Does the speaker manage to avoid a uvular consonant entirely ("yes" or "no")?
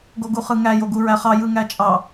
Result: no